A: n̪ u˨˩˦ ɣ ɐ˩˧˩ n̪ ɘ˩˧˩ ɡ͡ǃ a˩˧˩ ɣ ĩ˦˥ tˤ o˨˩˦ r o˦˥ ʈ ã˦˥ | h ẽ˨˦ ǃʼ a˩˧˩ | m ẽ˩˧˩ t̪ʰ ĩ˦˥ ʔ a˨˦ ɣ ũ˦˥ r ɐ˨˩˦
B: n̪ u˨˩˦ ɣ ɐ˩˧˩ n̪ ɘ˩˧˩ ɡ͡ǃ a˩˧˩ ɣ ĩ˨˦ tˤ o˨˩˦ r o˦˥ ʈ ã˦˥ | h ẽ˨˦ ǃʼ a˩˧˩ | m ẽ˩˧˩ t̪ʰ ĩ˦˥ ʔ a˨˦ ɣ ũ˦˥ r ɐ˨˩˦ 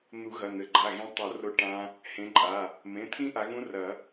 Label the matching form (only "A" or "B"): B